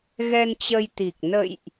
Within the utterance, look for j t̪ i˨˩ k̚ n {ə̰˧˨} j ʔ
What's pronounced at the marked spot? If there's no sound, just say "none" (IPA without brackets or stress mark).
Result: ə̰˧˨